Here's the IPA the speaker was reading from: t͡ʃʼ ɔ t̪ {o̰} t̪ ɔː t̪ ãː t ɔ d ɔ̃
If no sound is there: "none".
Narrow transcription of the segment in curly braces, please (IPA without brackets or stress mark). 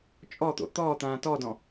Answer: o̰